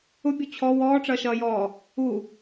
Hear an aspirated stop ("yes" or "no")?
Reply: yes